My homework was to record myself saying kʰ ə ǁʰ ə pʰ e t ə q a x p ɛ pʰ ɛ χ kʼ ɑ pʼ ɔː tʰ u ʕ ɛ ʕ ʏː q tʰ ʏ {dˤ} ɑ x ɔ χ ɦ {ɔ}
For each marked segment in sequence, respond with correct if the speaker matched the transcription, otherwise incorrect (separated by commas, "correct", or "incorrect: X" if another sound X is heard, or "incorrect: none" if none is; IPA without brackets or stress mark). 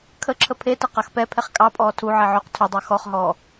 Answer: correct, incorrect: ɔː